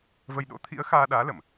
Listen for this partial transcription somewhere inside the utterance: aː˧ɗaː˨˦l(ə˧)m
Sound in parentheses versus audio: incorrect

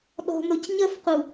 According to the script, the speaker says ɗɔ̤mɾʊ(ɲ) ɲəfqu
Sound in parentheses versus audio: incorrect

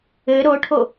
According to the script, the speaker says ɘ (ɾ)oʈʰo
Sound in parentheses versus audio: correct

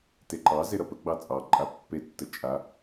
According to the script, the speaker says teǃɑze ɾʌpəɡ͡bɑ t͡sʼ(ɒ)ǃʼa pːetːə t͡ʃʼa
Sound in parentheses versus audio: incorrect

